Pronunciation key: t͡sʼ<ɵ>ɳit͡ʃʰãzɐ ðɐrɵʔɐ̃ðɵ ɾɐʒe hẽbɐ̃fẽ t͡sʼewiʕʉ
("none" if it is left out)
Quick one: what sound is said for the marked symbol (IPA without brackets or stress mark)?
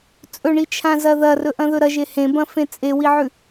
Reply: ɵ